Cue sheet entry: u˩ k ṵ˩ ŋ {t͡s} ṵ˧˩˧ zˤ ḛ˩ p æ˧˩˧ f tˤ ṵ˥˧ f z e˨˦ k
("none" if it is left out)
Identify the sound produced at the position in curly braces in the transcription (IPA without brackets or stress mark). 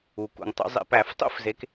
tˤ